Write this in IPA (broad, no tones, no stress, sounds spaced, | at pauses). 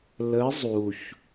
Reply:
l ə zˤ u ç